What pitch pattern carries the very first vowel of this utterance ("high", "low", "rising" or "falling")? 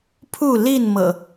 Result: falling